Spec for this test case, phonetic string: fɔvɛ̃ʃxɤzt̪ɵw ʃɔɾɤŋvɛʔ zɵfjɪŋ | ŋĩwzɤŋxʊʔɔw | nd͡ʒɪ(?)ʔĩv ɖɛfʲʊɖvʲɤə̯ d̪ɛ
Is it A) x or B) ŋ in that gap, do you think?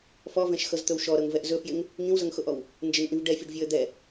B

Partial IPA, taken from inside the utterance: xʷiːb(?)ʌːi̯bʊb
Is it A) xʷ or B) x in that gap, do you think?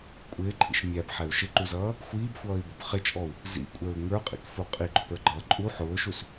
A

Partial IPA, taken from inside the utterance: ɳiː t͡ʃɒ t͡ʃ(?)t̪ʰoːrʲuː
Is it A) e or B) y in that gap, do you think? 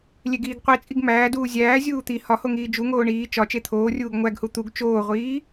A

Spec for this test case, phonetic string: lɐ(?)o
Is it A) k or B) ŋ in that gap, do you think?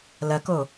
A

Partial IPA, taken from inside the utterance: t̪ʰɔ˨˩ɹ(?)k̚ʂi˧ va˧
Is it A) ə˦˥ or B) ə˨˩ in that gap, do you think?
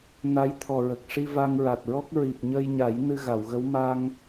B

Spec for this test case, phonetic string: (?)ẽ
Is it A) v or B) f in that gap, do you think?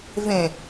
A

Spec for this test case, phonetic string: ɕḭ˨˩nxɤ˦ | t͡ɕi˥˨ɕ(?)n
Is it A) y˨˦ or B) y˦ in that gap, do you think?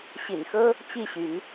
A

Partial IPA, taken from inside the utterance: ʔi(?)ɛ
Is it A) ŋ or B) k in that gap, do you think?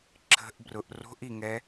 A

